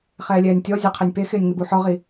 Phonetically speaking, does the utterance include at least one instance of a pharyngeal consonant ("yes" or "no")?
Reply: yes